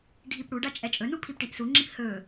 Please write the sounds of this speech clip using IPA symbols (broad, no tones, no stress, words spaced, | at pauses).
ɖʱipɽuɖa t͡ʃʼɛt͡ʃʼɵnu pʰipʈiʔsuŋ͡ǁip hɵ